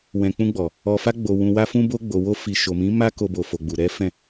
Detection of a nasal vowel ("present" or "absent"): present